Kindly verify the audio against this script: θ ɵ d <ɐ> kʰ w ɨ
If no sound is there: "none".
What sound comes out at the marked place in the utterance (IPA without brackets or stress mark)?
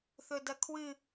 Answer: ɐ